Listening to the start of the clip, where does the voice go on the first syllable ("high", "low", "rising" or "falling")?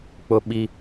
low